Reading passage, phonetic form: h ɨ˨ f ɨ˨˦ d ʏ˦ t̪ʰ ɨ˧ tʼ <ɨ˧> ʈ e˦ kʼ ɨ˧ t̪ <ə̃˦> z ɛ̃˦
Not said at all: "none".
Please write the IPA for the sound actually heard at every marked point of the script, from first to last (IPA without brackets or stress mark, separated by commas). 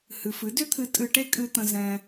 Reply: ɨ˧, ə̃˦